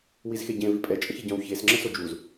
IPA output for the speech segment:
w i z x e ɟ ẽ v i pʼ ɛ t͡ʃʼ ə̃ ç e ɟ œ̃ w ç e s ŋ͡ǁ ə̃ s o d͡ʒ u z

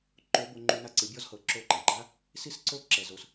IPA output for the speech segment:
ǃ o˧˥ b o˧ ŋ͡ǃ u˧ n a˧ ǀ ɯ˩˧ bʲ ɔ˧˥ z h ɤ˩˧ ǁ o˧˥ ǃ a˩ ɡ͡ǃ a˥ | s i˥ s ǀ o˥ ǁ ɛ˩ z o˩ s

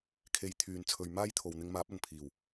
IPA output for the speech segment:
kʰ e˨˧ j t̪ʰ yː˨ n t͡sʰ ɵ˨˧ ɥ m aː˥ j t̪ʰ o˨ w n̪ ɪ˧ ŋ m aː˨˥ p̚ ɐ˨˩ n pʰ iː˨˩ w

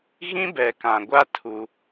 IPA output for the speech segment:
ɣ ĩ˦ b ɛ˨ k ã˨ ɡʷ a˦ tʰ u˦

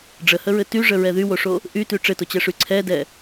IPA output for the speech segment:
ɖ͡ʐ ə h ə ɹ ɘ t y ʐ ə ɹ ɛ ð y w o ʂ o | ʔ y t y ʈ͡ʂ ɘ t o t͡ɕ ɛ ʂ y ǀʰ ɛ d ɛ

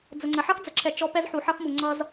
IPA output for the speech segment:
d͡z ə˨ ŋ͡ǀ ə˨ ħ ʌ˦ x d͡z ə˨ ǁʰ ɛ˨ t͡ʃ ɔ˦ p ɛ˦ z ħ u˨ ħ ʌ˦ x m u˨ ŋ͡ǀ ʌ˦ z

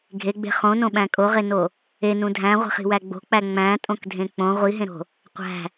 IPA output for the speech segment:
ɡʱ e ɡ͡b e̤ χ õ n õ ɓ æ̃ kʼ o ʁ e n o | e n ũ dʱ æ̃ ʁʷ i̤ χ i̤ w æ ɡ͡b o̤ k͡p æ ŋ͡m æ̃ tʼ õ k dʱ ẽ k͡p õ ʁʷ i ɦ ẽ ɾ o̤ | qʷ æ̤

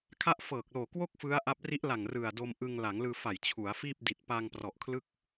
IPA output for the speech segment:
kʰ a˦˥ ʔ f ɤː˨˩ k̚ l oː˨˩ k w o˥˩ k̚ f ɯ˦˥ a̯ ʔ a˦˥ p̚ r i˦˥ ʔ l a˨˩ ŋ r ɯ˨˩ a̯ d o˧ m ʔ ɯ˧ ŋ l a˩˦ ŋ l ɯː˧ f a˨˩ j t͡ɕʰ u˩˦ a̯ f iː˥˩ p̚ d i˨˩ t̚ p a˧ ŋ p r ɔ˨˩ ʔ kʰ l ɯ˥˩ k̚

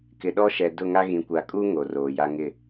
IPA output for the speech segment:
k ɪ˨ ɗ ɔ˦ ʃ ɛ˨ d ʊ˦˨ ŋ a˦ ɣ ĩ˨ kʷ a˨ kʼ u˦ ŋ o˨ r oː˨ j a˦ ŋ ɪ˦˨

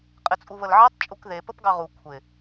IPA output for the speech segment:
qʼ ɪ t͡sʼ u β ə l ʕ e tˤ t͡ʃʼ u k ð e p ə p ɡ ɑ ʁ u kʷʰ ɪ

